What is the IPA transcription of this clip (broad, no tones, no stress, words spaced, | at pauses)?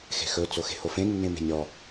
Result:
xe̤xɵ t͡soxe̤hofẽ nːẽme̤nʲɔ